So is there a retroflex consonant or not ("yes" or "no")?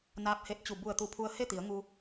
no